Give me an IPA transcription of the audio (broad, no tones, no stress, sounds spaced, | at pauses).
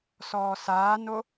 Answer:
s ɔː s aː n o